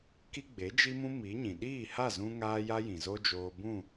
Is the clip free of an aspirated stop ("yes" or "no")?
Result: yes